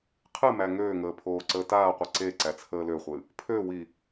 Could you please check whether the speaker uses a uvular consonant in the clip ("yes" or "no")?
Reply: yes